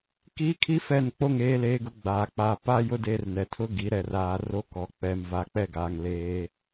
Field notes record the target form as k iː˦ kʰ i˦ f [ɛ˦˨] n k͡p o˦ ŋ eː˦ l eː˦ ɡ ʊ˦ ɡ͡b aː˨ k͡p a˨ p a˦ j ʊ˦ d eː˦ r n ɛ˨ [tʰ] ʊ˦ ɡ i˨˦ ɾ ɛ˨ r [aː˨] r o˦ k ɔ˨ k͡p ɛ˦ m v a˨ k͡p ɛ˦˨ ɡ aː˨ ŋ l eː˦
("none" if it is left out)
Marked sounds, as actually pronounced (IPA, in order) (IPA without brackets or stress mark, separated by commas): ɛ˦˨, tʰ, aː˨